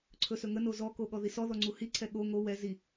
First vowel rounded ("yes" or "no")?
yes